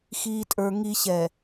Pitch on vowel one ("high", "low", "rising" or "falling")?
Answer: low